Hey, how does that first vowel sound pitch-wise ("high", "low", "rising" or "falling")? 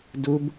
high